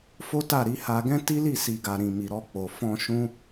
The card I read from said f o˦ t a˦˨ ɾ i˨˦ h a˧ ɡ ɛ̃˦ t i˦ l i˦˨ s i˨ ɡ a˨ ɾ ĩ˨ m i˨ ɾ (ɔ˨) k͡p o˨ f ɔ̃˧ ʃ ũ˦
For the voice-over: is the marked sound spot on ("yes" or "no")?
no